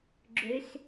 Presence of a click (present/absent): present